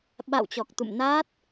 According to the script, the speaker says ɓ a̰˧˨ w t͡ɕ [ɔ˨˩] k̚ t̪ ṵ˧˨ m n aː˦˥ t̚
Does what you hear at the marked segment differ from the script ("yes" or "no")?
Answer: no